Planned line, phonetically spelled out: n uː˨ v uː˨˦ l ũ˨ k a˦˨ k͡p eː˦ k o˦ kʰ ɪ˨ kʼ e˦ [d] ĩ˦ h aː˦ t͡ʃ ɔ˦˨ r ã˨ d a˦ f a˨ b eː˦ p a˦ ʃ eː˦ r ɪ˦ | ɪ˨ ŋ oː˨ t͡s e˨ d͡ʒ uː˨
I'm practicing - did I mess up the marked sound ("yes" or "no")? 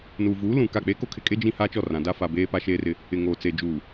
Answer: yes